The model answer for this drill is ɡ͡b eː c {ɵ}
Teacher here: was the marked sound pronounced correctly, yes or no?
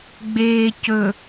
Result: yes